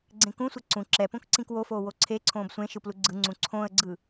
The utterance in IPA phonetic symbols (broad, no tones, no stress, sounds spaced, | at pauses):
ɡ͡ǀ ẽ k ũ sʷ ɛ ǀ ũ ǁ ɛ p õ k ǀ ĩ k w o f oː w o ǀʰ e ǀʰ õː b sʷ ẽ ʃ ɯ p l u ɡ͡ǀ ɯ ŋ͡ǀ ũ ǀʰ õ ə̯ ɡ͡ǀ ɯ